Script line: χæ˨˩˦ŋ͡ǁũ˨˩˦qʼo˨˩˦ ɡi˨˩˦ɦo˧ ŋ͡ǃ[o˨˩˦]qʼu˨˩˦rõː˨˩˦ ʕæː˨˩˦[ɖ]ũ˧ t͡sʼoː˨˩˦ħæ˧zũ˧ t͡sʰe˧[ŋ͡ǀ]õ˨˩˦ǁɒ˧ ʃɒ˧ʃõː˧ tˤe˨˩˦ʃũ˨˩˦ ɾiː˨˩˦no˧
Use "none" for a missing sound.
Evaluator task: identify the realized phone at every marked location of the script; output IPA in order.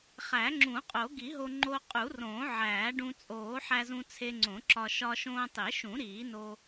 o˧, ɖ, ŋ͡ǀ

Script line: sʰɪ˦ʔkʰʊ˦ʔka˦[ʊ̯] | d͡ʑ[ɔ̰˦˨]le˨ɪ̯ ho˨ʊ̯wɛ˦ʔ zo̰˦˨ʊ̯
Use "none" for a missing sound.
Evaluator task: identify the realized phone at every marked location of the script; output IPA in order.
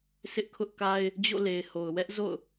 ɪ̯, o̰˦˨

